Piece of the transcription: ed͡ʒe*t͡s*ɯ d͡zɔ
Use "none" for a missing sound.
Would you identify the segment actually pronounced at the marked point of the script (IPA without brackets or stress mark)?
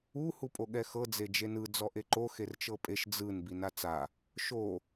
n